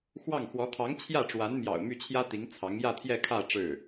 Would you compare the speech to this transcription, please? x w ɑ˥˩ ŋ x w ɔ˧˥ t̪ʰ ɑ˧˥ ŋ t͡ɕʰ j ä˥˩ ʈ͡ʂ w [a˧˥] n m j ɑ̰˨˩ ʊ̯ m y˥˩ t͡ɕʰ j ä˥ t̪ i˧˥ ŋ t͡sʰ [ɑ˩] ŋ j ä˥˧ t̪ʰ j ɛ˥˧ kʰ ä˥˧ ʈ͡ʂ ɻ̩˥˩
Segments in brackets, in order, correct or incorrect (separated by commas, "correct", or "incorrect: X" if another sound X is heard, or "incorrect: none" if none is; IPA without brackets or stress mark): correct, incorrect: ɑ˧˥